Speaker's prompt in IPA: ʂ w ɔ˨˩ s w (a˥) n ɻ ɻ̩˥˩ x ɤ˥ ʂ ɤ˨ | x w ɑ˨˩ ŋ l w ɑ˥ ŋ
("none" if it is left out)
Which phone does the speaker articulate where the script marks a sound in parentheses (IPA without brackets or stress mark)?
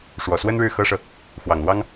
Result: ə˥